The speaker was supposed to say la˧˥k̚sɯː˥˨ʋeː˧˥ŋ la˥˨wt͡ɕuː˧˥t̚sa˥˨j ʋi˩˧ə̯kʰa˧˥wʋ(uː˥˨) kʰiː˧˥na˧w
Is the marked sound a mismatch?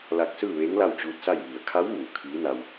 yes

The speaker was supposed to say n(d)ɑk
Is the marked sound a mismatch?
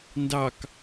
no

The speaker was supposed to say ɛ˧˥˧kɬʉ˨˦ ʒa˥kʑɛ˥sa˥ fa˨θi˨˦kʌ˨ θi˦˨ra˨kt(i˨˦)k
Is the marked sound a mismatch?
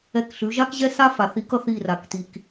yes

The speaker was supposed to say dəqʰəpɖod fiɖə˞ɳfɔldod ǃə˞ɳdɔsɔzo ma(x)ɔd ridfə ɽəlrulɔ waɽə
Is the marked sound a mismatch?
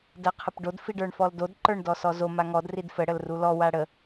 yes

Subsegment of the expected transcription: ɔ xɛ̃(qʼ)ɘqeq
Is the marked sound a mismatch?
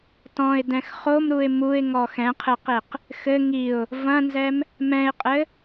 yes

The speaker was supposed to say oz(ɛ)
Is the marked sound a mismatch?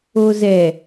no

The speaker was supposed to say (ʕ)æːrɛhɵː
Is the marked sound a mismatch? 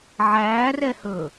no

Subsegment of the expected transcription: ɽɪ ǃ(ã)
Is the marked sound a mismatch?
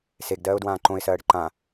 no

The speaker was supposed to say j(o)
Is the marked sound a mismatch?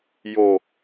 no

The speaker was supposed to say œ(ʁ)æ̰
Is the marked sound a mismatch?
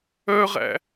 no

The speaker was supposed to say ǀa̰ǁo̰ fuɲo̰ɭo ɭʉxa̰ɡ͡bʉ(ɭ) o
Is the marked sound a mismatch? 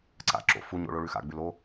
yes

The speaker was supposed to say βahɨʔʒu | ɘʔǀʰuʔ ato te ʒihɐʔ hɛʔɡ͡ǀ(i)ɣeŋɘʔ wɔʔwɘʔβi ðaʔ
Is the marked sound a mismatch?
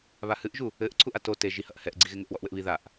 no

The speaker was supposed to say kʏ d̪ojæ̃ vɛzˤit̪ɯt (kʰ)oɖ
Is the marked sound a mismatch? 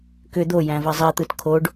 no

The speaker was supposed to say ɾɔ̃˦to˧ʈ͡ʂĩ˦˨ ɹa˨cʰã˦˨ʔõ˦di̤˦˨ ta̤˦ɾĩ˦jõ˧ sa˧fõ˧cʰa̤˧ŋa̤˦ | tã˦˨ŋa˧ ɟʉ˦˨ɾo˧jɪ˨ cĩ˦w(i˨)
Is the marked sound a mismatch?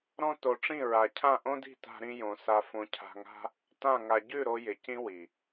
no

